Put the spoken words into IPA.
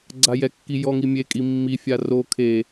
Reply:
ɡ͡ǀ a j ɛ kː i j ɔ ŋ i mʲ e kʼ i mː i fʲ a r o kʰ e

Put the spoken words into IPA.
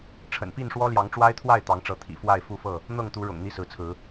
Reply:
ʈ͡ʂʰ ə̰˨˩ n p i˥˨ n ʂ w ɔ˦ l j ɑ˨˦ ŋ ʈ͡ʂ w a˦ ɪ̯ t̪ʰ w a˥˨ ɪ̯ t̪ ɑ˨˦ ŋ ʈ͡ʂ ɤ˨˦ t̪ʰ ḭ˨˩ f w a˥˨ ɪ̯ f u˥˨ f ɤ˥˨ | n̪ ɤ˥˨ ŋ t̪ u˨˦ ɻ ʊ̰˨˩ ŋ n̪ i˥˨ s ɹ̩˨˦ t͡sʰ ɹ̩˨˦

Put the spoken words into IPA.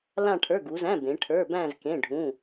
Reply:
l ã˥˧ ʈʰ ə˞˧˥˧ ɡ u˨˦ z æ̃˧˥˧ b ẽ˨˦ ʈʰ ə˞˧˥˧ b æ̃˥˧ z k ẽ˧˥˧ ɖʱ ũ˧˥˧

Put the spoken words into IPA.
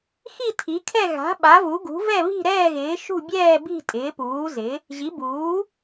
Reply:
x i˥˨ tʰ i˩˥ kʰ ɛ˥˨ ɣ a̤˩˥ ɓ a˩˥ v u˩˥ ɡ ṳ˩˥ v ɛ˥˨ β i̤˥˨ ɾ ɛː˥˨ ɣ ɪː˩˥ ʃ ṳ˥˨ bʲ ɛː˥˨ b i̤˥˨ tʼ ɪː˩˥ p uː˩˥ z ɪ˩˥ | ʑ i˩˥ b uː˩˥

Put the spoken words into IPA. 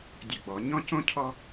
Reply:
dʲ ə˧˩˧ ɡ͡b ɔ˩˧ ɲ ɔ̃˦ c õ˦ cʰ ɔ˦

